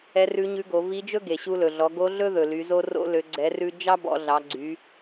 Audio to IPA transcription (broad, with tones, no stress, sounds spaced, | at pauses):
ɛ˧˥ r ʉ˧˥ ɲ ʉ˧˥ ɡ o˩˧ v i˧˥ d͡ʒ ɵ˥ ɡ e˩ ɕ u˧ l ɵ˩ ɮ ɔ˩˧ ɡ o˧˥ ɮ ɵ˥ ð ɵ˩ l y˩˧ z o˧ r o̰˧ l ø˩˧ ɡ͡ǀ ɛ˩˧ r ʉ˧ d͡ʒ ɑ˥ b ɔ̰˩˧ ɮ ɑ˩˧ ɡ͡ǀ y˩˧